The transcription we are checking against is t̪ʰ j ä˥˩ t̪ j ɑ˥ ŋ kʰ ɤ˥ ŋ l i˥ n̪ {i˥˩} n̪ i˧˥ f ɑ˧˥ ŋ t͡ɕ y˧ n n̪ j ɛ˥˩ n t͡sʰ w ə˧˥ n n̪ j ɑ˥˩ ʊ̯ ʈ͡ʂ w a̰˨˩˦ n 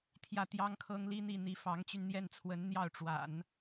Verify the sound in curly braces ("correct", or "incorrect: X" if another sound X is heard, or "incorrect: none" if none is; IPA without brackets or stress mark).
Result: correct